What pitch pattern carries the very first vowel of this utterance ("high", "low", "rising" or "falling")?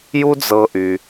high